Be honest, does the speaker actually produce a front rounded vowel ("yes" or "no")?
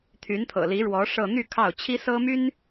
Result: yes